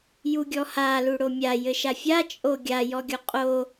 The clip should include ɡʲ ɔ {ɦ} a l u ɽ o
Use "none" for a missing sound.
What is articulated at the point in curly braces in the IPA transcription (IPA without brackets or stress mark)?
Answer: h